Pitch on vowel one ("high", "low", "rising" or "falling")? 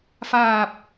low